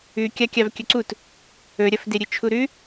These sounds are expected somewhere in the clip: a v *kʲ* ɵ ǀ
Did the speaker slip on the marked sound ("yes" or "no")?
no